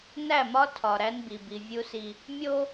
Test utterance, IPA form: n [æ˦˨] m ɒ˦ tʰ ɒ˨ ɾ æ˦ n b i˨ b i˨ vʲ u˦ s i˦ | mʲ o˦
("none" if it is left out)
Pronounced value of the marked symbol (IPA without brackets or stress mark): æ˦˨